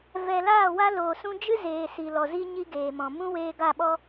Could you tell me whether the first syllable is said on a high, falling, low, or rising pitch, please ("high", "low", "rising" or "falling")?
low